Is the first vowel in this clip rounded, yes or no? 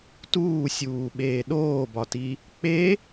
yes